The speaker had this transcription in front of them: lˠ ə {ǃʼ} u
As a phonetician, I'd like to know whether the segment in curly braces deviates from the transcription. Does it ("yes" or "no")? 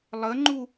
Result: yes